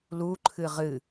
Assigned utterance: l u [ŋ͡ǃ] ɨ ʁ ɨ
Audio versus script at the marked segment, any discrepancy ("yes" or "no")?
yes